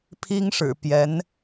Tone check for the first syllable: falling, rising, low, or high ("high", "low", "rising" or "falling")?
high